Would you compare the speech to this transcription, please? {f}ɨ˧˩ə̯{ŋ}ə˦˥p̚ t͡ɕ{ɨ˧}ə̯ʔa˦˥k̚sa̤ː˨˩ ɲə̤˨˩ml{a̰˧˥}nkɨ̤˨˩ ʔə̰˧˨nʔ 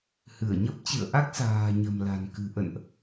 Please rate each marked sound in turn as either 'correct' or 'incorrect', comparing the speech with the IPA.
incorrect, incorrect, incorrect, incorrect

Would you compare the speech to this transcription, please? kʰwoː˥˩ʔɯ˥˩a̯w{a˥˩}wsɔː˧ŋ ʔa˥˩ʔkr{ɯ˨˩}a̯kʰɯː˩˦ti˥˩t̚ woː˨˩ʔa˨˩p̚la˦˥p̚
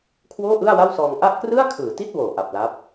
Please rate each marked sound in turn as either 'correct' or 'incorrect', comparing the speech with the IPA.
correct, incorrect

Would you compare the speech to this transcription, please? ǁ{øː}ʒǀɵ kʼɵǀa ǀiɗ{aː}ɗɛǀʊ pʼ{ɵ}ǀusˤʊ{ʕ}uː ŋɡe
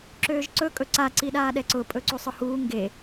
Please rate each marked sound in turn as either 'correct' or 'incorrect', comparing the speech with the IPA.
correct, correct, correct, incorrect

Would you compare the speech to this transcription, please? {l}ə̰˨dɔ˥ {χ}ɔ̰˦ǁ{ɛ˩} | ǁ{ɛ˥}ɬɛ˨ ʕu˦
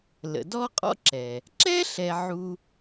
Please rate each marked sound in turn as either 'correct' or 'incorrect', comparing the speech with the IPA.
correct, incorrect, correct, correct

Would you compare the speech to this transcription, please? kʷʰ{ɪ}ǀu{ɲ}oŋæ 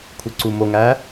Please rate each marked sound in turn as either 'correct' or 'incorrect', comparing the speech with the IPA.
incorrect, incorrect

